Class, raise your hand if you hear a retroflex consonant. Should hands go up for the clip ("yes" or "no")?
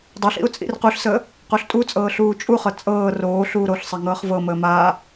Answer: no